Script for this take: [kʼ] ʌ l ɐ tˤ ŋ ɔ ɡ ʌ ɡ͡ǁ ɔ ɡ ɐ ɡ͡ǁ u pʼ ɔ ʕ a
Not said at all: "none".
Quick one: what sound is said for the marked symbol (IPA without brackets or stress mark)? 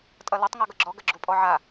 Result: tʼ